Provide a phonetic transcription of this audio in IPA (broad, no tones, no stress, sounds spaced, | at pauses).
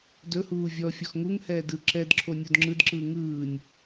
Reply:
d ɵ h uː vʲ ɔ fʲ ɔ x ŋ u ŋ h ɛː d ɯ ǁ ɛ d ǁʰ o nʲ o d ŋ͡ǁ ɯ d ǁ ɯː ŋ ɯː nʲ